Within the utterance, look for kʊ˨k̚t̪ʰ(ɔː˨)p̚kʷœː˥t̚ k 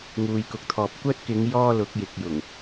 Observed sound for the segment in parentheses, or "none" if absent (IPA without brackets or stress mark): ɔː˨